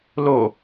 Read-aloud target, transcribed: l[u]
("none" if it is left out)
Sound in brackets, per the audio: o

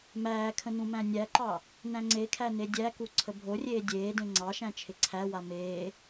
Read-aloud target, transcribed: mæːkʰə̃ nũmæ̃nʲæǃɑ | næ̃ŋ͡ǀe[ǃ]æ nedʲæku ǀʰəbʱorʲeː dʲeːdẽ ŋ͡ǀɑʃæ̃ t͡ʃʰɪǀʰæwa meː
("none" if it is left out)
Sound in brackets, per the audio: kʰ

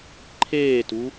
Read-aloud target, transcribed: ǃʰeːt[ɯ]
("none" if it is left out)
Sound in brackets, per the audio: u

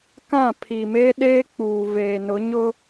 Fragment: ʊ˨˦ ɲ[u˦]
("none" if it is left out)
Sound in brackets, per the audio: ʊ˦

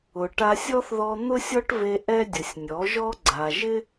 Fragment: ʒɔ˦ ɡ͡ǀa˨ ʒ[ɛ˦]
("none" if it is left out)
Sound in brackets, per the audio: ɪ˦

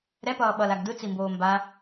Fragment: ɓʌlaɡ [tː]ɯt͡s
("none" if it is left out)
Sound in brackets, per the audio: d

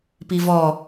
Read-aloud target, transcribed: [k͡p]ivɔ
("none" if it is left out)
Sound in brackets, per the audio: p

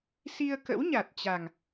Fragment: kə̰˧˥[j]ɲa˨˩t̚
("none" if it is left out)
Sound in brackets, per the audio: w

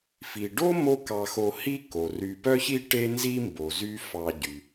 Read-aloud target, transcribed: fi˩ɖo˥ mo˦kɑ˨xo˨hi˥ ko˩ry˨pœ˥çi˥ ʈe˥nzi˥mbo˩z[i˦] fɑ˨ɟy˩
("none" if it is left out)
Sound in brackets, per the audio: y˦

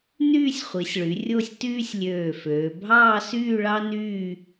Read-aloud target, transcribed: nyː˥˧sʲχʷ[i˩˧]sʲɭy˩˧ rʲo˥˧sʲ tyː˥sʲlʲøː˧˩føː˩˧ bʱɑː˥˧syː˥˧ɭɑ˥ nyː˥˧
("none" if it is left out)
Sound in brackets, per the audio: i˩˧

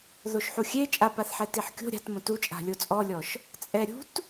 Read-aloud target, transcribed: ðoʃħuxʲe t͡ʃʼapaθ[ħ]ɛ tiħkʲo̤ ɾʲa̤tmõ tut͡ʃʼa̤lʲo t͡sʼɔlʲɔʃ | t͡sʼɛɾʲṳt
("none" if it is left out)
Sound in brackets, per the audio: ħ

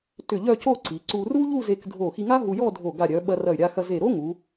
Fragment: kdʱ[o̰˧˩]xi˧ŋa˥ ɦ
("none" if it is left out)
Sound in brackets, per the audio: o˧˩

